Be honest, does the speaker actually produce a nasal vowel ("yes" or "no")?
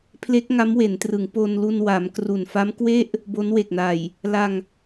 no